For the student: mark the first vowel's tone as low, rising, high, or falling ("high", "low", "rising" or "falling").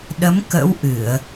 rising